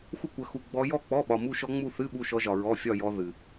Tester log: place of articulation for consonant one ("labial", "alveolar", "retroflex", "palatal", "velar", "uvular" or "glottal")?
velar